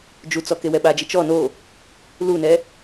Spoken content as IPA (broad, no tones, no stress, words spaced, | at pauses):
d͡ʒut͡sɔ kewɛɓad͡ʒi t͡ʃɔ no | lunɛ